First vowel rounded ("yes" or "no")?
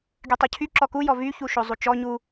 yes